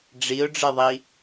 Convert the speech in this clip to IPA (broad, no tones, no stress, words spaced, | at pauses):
ɖ͡ʐiʊ̯ɖ͡ʐɨðˤi